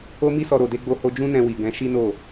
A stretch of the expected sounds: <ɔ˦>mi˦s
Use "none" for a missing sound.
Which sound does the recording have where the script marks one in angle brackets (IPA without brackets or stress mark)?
o˦